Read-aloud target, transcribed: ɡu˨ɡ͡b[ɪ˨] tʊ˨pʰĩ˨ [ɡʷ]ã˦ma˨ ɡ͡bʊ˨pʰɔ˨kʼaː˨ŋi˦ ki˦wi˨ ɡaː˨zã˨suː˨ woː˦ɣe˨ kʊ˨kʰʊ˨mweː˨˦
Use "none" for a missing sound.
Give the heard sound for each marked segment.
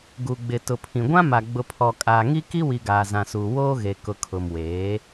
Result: ɪ˨, ɡʷ

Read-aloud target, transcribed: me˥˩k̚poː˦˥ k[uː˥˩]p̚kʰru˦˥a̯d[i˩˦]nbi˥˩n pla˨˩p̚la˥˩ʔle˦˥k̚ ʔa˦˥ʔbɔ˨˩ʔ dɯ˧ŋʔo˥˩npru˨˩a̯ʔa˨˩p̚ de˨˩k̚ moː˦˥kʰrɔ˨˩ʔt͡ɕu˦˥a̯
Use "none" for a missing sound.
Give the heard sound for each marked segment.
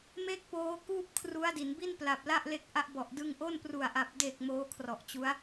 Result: uː˥˩, i˩˦

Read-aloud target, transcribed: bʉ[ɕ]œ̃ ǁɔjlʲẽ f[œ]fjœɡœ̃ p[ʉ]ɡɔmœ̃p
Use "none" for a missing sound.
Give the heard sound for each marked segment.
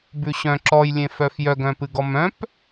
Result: ɕ, œ, ɨ

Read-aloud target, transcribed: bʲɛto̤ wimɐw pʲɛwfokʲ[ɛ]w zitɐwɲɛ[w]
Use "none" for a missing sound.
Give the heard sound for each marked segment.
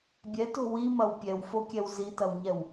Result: ɛ, w

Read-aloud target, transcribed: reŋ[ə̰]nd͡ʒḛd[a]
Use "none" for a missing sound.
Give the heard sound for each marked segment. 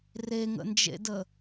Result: ə̰, ə

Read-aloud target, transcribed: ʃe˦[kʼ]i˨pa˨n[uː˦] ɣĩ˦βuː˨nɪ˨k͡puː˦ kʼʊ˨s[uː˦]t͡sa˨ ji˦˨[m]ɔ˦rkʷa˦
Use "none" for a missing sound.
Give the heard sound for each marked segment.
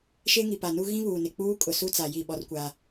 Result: ŋ, u˦, u˦, ɓ

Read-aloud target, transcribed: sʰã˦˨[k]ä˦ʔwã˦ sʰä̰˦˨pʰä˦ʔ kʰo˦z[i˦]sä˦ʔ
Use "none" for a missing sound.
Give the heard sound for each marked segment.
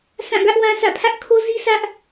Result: ɡ, i˦

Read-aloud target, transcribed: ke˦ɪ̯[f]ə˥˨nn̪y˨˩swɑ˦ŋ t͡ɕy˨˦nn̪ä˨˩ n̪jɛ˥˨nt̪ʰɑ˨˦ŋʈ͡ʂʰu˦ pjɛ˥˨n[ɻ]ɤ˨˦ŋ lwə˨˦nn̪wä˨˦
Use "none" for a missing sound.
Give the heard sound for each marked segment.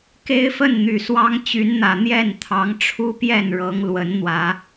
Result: f, ɻ

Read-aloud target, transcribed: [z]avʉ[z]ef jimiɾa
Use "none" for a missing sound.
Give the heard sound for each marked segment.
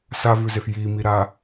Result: s, z

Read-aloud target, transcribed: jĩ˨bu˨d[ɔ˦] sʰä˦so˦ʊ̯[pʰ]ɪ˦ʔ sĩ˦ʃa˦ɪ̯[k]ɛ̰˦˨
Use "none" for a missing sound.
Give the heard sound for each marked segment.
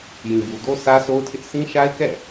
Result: o˦, tʰ, k

